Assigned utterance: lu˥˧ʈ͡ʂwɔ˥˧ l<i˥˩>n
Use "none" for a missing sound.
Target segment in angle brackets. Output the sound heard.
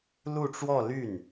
y˥˩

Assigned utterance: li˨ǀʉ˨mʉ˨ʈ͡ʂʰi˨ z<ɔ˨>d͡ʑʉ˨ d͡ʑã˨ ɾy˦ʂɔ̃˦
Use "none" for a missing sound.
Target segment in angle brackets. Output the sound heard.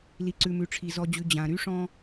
ɔ˨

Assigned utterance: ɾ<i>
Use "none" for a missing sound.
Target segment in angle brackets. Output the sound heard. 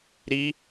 i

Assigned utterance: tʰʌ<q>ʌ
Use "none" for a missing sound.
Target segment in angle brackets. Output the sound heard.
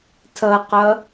q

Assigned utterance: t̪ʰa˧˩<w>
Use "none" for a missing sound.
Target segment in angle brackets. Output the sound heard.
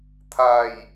j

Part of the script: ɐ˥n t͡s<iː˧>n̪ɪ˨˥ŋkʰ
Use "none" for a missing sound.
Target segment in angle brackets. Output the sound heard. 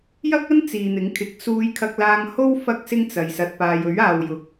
iː˨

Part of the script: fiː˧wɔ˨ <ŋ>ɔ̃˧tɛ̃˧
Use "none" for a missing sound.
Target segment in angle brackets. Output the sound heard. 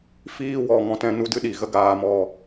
ŋ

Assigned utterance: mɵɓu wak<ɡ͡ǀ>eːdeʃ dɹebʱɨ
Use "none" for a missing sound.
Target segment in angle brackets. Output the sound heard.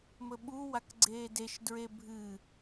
ɡ͡ǀ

